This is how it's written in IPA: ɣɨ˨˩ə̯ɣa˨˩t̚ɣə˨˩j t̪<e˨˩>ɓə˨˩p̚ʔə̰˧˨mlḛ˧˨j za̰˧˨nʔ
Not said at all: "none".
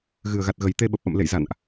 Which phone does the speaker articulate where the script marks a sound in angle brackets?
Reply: e˧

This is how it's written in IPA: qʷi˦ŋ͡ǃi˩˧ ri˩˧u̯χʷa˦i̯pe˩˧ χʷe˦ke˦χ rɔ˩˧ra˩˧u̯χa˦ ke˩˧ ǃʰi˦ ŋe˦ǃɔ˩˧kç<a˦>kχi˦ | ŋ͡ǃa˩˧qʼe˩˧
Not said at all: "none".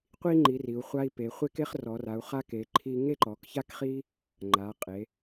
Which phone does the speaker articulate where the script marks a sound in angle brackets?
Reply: a˦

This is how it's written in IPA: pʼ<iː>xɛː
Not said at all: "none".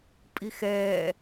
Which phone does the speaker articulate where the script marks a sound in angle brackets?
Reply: i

